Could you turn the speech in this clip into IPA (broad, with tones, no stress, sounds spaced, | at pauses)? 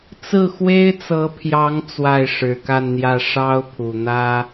t͡s ɹ̩˥˩ x w e˥ ɪ̯ t͡s ɤ˧˥ pʰ j ɑ˧˥ ŋ t͡s w a˥˩ ɪ̯ ʂ ɻ̩˨˩ k a˥˧ n n̪ j ä˥˩ ʂ ɑ˥ ʊ̯ pʰ u˨˩ n̪ ä˥